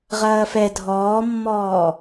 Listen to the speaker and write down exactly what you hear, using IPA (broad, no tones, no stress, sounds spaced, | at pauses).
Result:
ʁ ɐː f ɛ dʱ ɔː mː ɔː